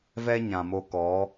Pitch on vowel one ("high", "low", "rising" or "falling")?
high